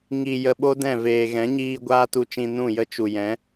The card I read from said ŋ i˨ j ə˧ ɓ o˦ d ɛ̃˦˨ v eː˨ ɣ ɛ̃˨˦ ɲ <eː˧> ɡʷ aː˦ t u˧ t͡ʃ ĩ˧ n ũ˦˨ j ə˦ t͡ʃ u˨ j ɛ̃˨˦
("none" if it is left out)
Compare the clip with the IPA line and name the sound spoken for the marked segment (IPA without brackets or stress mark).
iː˧